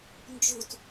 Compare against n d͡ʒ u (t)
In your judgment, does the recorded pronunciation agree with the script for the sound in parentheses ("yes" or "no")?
yes